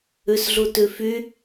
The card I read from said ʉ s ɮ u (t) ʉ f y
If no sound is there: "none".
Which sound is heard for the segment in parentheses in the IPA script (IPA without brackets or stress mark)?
t